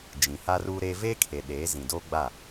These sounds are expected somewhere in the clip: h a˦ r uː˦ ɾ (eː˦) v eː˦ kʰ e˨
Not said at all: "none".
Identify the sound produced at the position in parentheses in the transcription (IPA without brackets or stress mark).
eː˦